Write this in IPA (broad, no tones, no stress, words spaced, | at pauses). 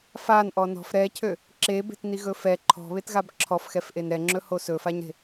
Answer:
fanʔɔ nɔ̤f ɾɛcʰø | ǁebe̤tniɣɵ fɛ ǃʰɔ̤βetɣab ǁʰɔfxɛfʔen ɾɛŋ͡ǁɵho sɵfaɲɾe̤